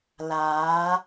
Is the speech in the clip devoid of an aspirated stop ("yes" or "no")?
yes